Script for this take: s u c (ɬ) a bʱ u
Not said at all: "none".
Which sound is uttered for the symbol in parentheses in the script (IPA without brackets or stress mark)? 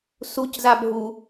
z